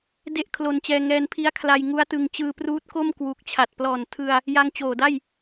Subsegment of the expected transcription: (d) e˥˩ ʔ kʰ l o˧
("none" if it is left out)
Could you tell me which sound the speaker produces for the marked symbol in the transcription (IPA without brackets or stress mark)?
d